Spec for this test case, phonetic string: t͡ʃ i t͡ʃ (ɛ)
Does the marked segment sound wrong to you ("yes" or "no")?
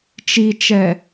no